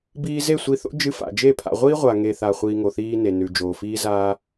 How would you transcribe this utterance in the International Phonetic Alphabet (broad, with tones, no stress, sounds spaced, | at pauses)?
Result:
b iː˧ z e˦˨ sʷ i˧ θ o̰˦ d͡ʒ ɨ˧ f a̰˨ d͡ʒ e˦˨ pʰ a̰˨ ʁʷ iː˦ ʁʷ a˨ ŋ e˨ θ a˨ χʷ iː˧ ŋ o˨ θ iː˦ n e˨ n ʉ˨ d͡ʒ oː˨ f iː˦ z aː˦